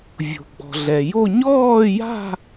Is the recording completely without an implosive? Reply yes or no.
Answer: yes